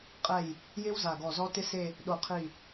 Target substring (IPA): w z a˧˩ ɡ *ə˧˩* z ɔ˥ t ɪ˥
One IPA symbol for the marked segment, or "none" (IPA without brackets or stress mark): ɔ˧˩